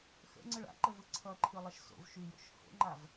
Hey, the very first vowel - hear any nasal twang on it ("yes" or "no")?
no